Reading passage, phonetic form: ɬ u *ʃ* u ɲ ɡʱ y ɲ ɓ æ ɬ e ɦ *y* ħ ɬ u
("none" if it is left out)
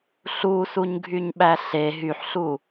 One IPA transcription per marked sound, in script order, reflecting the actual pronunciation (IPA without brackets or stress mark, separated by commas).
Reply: s, y